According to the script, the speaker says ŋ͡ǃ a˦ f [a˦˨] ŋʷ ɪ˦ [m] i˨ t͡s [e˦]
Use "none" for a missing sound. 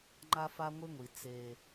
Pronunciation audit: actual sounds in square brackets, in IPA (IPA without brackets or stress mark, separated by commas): a˦, ŋʷ, e˦